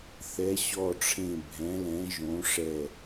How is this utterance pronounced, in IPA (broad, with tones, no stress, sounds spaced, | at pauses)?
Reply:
θ ɛ˨˥ ɕ ɔ˦˨ ʈ͡ʂʰ ẽ˦˨ bʱ ɛ̃˨˥ l ɛ̃˨˥ ʒ õ˨˥ ʂ ɛ˦˨